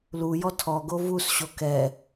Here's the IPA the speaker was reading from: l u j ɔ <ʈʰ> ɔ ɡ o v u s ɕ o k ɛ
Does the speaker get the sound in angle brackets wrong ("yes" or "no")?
yes